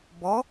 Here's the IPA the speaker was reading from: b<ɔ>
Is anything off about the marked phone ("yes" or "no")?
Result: no